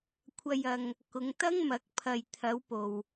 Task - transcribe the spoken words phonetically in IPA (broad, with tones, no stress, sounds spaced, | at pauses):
kʷʰ ɐ˨ j ɐ˨ ŋ | k ʊ˨˧ ŋ t̪ ɐ˥ ŋ m ɐ˨˥ k̚ pʰ ɐ˨ j t̪ʰ ɐ˨˧ w p o˨ w